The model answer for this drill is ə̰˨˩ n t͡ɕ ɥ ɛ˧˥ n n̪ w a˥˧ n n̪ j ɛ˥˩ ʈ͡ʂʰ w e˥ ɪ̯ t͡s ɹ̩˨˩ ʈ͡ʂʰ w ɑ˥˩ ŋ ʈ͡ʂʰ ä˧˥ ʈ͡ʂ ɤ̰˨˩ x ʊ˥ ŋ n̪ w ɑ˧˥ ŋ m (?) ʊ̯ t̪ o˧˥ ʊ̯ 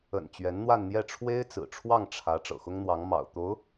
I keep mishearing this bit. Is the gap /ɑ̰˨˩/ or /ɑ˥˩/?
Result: ɑ̰˨˩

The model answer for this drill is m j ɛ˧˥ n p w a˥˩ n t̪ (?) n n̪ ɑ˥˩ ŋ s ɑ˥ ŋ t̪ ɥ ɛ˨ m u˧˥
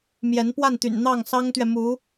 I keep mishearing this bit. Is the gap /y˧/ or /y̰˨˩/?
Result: y̰˨˩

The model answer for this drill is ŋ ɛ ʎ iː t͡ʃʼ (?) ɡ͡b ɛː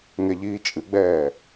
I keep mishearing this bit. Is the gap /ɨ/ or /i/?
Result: ɨ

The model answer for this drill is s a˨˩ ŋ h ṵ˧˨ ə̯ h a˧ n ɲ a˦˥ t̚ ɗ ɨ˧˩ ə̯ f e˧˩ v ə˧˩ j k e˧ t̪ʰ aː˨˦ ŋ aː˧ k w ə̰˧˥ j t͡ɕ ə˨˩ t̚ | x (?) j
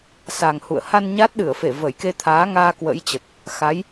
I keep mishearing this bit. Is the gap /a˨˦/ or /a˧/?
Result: a˨˦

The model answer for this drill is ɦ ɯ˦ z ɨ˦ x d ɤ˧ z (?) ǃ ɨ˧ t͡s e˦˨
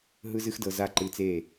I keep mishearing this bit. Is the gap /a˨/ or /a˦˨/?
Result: a˦˨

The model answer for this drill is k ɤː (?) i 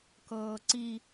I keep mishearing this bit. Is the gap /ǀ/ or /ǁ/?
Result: ǀ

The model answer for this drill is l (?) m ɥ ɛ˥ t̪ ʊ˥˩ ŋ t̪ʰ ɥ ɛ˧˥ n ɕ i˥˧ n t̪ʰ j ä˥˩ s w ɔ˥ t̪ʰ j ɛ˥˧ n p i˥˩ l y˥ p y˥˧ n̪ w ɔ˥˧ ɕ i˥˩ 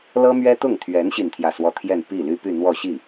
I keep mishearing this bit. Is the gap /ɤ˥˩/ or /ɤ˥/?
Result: ɤ˥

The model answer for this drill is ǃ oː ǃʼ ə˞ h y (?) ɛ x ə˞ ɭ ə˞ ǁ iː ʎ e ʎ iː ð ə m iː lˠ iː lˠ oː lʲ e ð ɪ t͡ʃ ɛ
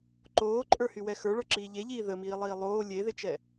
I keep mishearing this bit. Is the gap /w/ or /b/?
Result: w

